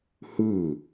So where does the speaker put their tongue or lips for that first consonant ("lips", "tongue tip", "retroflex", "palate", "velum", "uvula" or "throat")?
throat